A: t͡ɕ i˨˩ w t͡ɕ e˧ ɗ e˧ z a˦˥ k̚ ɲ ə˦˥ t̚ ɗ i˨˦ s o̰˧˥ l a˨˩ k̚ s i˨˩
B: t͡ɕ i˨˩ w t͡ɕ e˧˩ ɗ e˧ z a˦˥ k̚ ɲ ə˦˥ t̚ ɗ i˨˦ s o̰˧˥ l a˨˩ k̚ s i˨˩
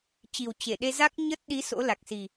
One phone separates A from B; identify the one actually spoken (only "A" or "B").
B